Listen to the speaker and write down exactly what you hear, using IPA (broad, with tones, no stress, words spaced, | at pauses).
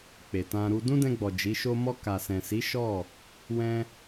k͡pe˨tã˧ɾu˧ dũ˦dɛ̃˧ɡ͡bɔ˨ d͡ʒi˨˦ʃo˦ mɔ˧ka˨sɛ̃˨si˨˦ ʃɔ˦˨ | wɛ̃˦